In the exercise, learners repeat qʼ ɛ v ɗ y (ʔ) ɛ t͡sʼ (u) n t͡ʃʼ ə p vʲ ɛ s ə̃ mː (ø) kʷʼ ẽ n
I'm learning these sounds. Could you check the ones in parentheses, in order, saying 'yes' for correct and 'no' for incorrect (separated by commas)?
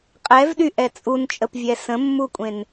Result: yes, yes, no